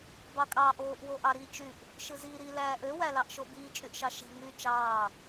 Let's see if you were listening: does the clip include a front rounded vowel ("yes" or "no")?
yes